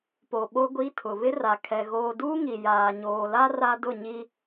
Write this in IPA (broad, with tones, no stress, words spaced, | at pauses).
po˨ɓo˦ɡʷi˦tʰʊ˨ βɪ˦ra˨kʰɛ˨ ɣoː˨duː˦ ŋi˨ jaː˨ɲoː˨la˦ ra˦dʊ˦˨ɲi˦